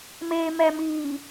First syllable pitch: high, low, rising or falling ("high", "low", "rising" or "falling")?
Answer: low